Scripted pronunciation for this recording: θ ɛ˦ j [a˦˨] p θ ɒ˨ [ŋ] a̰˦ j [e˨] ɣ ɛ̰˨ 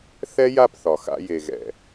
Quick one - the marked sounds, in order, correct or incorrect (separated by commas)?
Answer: correct, incorrect, correct